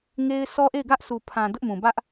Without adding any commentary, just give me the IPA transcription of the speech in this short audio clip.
ŋ e˦ ɪ̯ s ɔ˦ ʔ e˦˨ ɪ̯ ɡ ä˦ ʔ s u˨ pʰ ã˨ d ʊ˦ ʔ m ũ˨ b ä˦ ʔ

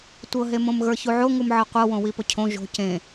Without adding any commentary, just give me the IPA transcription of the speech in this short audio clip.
tʷ ɤ ɦ e m õ m ɣ ə˞ ç u ʕ o ŋ u m ʕ ɤ qʷ ɤ w õ w i p ʊ cʰ õ ʒ o̤ c ẽ

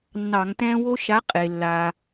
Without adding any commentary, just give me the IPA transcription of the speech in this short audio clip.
nː ɑ˧˩˧ ŋ t ɛ̃ː˦ w o˦ ʃ a˨˥ qʼ e˩ lː a˩

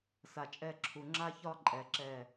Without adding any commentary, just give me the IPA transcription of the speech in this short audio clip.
s a˨ t͡ʃʼ ɛ˦˨ ǁʰ u˨ ŋ͡ǁ a˦ ç ɒ˦ ǃʼ ɛ˨ ǁ ɛ˦˨

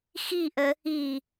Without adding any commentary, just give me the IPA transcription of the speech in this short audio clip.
x i ʔ ə | i

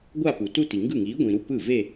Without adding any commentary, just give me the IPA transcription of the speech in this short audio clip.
ɡʷ a˥˧ p u˨ t u˥˧ t i˨ ŋ ɡ ɯ˥˩ ŋ iː˨˥ ɡʷ ĩ˨ ɾ u˥˩ p ɯ˥˩ v e˥˧

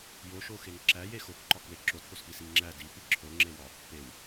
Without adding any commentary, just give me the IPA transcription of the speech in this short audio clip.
j o ʃ o x e ŋ ǁ æ j e x o k ǃ ɒ k w e ǁ o t p o s p i s i ŋ ŋ͡ǁ æ d i p i ǁʰ o ŋ͡ǁ e w ɒ | p e w

